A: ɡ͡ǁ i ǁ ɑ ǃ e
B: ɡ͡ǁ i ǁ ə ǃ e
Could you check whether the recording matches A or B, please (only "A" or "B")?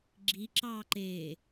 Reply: A